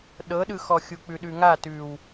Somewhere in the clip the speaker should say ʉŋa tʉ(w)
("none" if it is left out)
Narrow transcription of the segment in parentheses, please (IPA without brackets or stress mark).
w